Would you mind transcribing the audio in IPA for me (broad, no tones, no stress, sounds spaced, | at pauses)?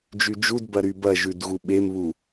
d͡ʒ y d͡ʒ u d b ɐ ɾ y b ɐ ʒ ʉ d ɣ u ɓ e m β u